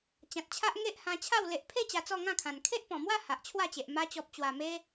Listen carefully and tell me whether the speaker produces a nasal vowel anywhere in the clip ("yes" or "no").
yes